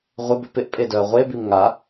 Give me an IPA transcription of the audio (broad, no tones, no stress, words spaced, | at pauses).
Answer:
ʁʷɪbʏ pɪʔpʼedœɐ̯ ʁʷebim ŋa